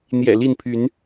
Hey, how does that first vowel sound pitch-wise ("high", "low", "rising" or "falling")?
low